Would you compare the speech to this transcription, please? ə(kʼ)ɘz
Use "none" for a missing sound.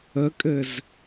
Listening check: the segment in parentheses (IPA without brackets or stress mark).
kʼ